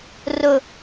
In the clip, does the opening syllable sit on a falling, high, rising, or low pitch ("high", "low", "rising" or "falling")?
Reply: high